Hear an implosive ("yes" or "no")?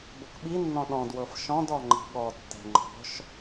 yes